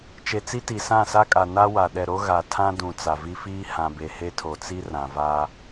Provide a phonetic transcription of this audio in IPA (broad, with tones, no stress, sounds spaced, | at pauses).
t͡ʃ e˨ t͡s i˦ t i˨ s ã˦˨ s a˦ kʼ a˨ n a˦ w a˨ ɗ ɛ˨ ɾ o˦ ɣ a˨ tʰ ã˦ d ũ˨ t͡s a˨ v i˦ f iː˦ h ã˨ b e˨ h e˦ tʰ o˨ t͡s i˦ r ã˨ v a˦